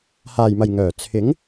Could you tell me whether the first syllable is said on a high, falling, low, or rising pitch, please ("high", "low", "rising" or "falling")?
low